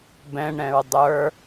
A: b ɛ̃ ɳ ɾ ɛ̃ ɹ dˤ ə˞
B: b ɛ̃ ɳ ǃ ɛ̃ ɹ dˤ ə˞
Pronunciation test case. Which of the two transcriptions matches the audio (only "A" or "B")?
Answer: A